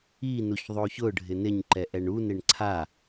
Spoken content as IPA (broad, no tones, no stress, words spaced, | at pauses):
inuç ðˤoçʊɖʱɪ nɪɲǃɛ ʔɛɳunɪɳ ǀʰa